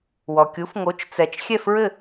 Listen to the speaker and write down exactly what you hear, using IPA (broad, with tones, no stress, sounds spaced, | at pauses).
w ɔ˩ kʲ u˩˥ f ŋ o˩˥ t͡ʃ t͡s ɛ˩ t͡ʃ xʲ ɛ˥˩ f ɹ ɘ˥˩